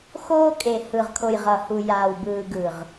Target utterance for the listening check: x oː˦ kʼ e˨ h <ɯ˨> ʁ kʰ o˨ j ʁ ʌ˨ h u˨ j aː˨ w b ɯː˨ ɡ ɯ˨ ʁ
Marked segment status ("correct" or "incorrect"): correct